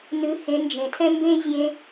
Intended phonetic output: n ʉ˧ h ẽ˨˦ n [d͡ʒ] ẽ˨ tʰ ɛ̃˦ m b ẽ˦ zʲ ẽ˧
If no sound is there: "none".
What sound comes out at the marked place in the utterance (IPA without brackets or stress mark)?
d͡ʒ